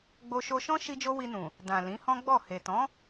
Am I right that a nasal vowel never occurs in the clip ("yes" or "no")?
no